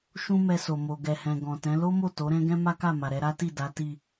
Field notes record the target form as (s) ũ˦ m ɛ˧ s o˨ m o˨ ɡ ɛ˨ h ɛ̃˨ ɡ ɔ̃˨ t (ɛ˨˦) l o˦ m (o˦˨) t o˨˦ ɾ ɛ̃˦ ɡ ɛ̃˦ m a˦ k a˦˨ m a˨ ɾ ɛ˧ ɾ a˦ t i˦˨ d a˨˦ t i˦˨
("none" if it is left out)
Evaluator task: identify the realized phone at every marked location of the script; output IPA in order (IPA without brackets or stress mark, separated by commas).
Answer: ʃ, ɛ̃˨˦, o˦˨